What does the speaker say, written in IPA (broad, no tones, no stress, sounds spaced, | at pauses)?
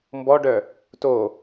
m b ɔ ɖ œ | t o